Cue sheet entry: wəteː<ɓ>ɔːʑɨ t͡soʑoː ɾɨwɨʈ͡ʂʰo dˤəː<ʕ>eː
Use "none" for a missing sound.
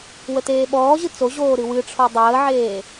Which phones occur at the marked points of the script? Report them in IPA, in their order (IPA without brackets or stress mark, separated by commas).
ɓ, ʕ